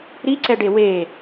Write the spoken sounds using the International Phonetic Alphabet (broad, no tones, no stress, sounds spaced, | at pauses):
ɾ i ǀ ɛ ɖ e w e